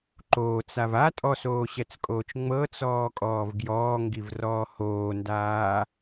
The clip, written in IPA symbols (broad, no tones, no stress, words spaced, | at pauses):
ǃoːt͡sav a tʼɔsoːɕɛt͡skʼoːt͡ʃ ŋ͡mɤt͡sɔːkʼɔːv ɡjɔːŋɡivrɔː hoːndaː